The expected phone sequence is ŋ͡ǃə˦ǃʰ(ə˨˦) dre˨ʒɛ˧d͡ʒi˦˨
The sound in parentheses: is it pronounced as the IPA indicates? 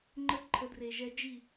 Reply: yes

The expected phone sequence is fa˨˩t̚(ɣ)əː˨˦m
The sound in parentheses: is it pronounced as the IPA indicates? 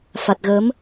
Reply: yes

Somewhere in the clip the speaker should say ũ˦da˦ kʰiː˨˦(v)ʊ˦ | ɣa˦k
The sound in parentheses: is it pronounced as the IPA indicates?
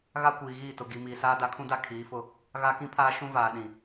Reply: no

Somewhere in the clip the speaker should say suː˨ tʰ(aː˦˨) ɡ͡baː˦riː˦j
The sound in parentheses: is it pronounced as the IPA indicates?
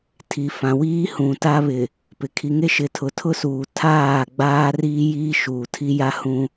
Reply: yes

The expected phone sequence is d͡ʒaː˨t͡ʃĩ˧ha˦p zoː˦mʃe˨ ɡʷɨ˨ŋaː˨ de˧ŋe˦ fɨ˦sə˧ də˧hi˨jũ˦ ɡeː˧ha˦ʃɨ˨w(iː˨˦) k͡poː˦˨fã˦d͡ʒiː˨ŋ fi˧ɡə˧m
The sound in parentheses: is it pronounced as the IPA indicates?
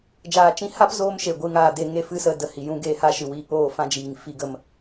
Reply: no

